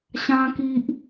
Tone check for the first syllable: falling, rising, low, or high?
high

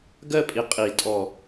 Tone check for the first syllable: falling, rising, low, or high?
falling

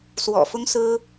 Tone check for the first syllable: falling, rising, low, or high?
low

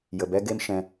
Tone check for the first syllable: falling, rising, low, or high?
low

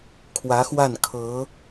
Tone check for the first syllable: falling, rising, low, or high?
rising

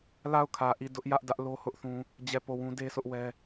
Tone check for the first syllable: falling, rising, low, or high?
falling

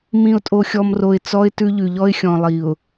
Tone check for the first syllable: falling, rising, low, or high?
low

